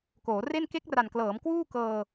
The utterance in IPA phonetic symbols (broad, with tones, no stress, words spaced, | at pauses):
koː˩˦re˥˩n ke˦˥k̚ra˨˩nklɤː˩˦m kwuː˥˩ kɤː˧